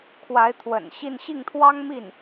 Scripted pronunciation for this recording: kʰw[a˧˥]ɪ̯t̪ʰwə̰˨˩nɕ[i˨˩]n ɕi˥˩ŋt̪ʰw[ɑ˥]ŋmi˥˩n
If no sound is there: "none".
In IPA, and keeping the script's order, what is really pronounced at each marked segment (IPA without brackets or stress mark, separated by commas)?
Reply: a˧˥, i˥˧, ɑ˥